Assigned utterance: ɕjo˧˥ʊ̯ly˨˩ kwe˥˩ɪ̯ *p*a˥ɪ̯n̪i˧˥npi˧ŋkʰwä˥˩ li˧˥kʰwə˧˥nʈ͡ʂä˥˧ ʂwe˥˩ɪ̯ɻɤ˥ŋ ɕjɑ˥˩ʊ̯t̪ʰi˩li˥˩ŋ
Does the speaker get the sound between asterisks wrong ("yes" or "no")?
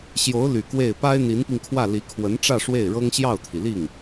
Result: no